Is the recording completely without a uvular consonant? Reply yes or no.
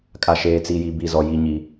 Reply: yes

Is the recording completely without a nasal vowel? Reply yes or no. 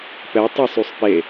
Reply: yes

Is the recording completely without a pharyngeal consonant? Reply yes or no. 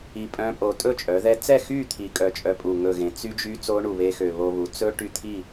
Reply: yes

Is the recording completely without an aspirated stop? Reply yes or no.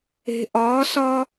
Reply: yes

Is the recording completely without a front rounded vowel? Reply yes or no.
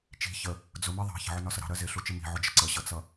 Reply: yes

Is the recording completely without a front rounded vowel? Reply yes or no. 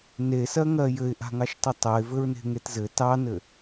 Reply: yes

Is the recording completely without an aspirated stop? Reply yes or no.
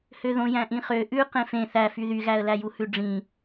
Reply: yes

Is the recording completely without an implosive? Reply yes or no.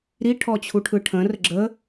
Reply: yes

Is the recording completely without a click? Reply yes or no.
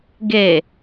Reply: yes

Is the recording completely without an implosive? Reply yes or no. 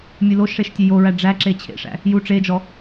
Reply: yes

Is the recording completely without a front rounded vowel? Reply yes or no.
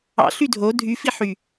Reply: no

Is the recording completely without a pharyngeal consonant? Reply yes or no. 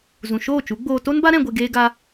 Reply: yes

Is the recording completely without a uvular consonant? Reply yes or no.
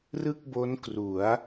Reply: yes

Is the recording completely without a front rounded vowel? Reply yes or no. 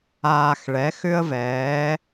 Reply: no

